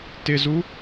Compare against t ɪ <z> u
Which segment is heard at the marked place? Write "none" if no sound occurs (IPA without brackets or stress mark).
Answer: z